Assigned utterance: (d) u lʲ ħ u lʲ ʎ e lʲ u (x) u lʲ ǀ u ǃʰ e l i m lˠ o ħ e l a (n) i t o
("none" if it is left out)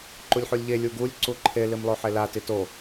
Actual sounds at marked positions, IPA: ǃ, ɡ, t

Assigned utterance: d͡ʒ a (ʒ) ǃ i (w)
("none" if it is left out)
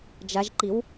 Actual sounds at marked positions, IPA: ʒ, w

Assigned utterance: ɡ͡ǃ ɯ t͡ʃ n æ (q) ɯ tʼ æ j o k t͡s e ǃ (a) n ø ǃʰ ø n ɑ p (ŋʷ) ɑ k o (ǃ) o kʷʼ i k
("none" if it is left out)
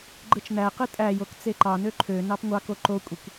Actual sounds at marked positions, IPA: q, ɑ, ŋʷ, ǃ

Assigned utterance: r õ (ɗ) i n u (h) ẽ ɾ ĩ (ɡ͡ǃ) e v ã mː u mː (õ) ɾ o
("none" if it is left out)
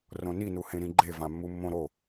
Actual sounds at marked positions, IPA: n, h, ɡ͡ǃ, õ

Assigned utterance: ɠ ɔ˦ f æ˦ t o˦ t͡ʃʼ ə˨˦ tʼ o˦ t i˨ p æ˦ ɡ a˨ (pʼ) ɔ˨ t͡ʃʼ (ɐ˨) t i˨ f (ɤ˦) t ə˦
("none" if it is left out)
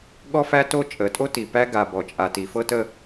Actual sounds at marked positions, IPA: b, a˨, ɤ˦

